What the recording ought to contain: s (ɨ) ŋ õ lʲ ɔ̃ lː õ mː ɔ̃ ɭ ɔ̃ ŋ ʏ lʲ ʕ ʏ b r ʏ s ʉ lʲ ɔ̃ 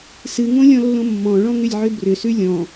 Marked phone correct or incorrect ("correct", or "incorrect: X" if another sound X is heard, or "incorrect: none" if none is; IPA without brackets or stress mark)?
correct